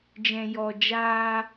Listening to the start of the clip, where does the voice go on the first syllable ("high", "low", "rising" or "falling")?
low